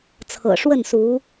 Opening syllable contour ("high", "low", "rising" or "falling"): low